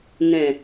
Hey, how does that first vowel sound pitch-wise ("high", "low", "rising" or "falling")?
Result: low